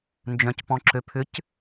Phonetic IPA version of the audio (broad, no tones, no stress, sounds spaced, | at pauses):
n d͡ʒ œ̃ c p ɔ̃ ǁ ø pʰ ʏ c